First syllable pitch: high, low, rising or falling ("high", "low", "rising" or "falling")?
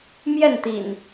falling